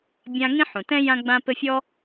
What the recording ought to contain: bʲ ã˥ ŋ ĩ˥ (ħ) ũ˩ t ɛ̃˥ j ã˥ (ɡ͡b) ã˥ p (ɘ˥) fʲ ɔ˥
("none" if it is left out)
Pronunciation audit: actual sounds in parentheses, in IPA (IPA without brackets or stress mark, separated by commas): ħ, ɡ͡b, ɘ˥